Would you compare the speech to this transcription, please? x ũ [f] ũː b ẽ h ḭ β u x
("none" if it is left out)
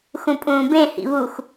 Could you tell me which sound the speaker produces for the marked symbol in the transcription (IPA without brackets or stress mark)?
pʼ